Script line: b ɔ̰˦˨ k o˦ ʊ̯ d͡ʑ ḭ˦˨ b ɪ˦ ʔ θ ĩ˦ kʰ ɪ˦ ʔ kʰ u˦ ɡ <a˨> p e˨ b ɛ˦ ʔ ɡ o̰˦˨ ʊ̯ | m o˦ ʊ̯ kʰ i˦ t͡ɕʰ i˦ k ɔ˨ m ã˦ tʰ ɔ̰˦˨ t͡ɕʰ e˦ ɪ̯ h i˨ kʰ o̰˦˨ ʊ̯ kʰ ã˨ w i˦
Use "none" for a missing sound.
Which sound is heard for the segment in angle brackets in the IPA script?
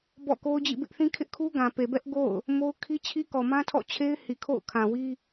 ã˨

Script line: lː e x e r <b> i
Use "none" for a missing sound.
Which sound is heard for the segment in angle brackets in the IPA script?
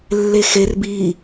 b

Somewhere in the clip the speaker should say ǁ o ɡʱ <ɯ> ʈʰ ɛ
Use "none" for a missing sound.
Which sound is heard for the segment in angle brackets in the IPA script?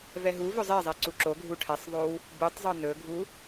u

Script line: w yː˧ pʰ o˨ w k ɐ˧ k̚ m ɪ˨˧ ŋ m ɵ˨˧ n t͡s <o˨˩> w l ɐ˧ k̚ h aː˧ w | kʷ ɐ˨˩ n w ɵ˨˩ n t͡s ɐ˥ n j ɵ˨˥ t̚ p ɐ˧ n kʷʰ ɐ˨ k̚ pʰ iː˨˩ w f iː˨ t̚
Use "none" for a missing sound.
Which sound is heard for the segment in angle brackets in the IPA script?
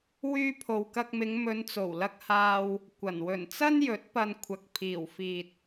o˨˩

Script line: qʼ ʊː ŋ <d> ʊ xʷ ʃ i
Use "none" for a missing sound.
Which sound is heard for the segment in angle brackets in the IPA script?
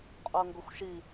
ɡ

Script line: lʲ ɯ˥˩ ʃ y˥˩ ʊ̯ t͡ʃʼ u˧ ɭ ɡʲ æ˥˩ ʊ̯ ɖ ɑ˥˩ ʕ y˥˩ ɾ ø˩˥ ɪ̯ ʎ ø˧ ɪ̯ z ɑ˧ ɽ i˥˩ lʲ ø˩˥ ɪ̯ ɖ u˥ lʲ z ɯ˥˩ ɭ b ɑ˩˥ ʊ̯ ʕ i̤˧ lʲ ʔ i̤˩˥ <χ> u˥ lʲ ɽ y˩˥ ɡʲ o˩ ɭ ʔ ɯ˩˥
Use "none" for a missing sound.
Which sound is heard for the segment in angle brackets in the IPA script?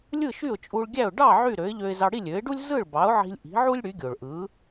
ʕ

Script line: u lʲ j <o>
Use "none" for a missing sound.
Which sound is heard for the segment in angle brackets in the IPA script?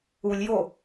o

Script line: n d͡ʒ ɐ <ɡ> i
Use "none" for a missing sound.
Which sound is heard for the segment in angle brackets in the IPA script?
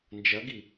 ɡ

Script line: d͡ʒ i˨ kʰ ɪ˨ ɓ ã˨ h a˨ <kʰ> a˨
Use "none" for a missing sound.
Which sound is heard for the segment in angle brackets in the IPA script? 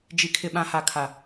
kʰ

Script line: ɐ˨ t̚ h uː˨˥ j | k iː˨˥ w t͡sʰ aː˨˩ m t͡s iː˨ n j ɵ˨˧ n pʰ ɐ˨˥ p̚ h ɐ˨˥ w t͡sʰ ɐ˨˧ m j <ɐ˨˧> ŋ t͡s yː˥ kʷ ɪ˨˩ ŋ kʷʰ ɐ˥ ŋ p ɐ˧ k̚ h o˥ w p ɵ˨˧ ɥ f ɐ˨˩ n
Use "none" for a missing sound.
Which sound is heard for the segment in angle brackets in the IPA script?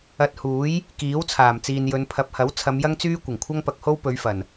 ɐ˥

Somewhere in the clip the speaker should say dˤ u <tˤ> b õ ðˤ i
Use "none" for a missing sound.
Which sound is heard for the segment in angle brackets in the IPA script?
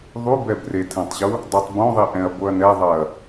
tˤ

